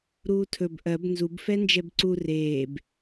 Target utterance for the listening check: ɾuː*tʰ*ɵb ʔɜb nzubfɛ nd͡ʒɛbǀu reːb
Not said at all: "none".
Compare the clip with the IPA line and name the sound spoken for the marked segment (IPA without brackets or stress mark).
tʰ